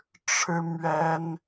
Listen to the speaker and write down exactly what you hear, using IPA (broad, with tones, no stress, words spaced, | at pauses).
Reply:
ʈ͡ʂʰɻ̩˥mɥɛ˥n